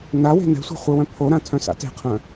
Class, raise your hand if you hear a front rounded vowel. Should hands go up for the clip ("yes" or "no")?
yes